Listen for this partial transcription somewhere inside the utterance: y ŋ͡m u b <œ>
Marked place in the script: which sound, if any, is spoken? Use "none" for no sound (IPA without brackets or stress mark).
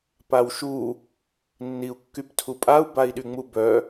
œ